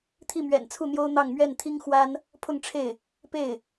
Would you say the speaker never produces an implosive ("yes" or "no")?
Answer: yes